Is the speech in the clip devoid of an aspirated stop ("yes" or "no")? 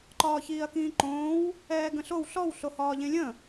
yes